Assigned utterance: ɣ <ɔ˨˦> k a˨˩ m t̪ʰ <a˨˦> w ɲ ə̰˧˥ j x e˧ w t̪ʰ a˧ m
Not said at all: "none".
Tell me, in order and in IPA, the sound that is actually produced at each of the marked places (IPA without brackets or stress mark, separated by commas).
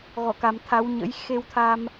ɔ˧˩, a˨˦